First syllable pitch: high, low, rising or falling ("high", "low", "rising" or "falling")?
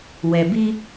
low